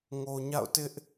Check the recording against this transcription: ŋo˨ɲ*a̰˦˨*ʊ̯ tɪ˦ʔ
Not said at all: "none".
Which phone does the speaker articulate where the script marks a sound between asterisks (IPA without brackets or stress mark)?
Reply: a̰˦˨